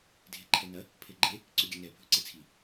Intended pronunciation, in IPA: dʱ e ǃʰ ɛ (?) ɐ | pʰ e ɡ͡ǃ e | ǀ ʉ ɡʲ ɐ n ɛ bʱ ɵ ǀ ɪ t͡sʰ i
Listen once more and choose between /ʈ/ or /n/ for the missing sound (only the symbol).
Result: n